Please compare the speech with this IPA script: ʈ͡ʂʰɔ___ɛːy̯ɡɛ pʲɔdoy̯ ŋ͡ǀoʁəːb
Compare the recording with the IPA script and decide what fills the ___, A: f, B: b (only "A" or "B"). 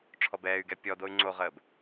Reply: B